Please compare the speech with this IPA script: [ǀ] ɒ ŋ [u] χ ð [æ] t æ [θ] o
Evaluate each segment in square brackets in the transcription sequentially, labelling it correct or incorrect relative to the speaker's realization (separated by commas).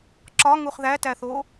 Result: incorrect, correct, correct, correct